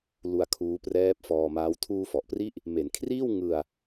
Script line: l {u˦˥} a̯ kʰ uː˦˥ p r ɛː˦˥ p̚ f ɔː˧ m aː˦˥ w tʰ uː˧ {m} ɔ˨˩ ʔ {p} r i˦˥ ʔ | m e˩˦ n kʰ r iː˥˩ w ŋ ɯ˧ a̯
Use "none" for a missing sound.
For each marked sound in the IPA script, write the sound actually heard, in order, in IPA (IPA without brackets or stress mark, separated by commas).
u˧, f, p